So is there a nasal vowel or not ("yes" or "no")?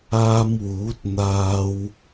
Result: no